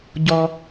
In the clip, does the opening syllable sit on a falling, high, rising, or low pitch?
high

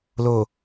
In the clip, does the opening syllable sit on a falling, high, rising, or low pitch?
low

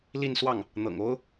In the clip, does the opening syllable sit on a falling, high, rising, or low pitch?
falling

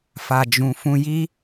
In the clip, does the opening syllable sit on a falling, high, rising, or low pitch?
low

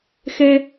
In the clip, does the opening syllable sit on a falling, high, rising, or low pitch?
high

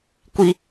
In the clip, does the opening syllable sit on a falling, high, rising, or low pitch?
high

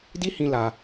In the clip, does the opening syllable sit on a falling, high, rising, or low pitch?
high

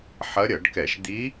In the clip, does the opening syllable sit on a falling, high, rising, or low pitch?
rising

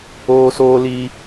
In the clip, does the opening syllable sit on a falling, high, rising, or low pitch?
high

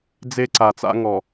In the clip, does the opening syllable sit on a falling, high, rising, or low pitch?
high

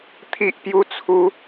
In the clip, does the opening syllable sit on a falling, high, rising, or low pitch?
high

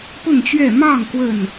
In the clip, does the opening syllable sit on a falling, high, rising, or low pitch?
falling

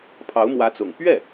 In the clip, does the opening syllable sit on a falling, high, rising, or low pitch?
rising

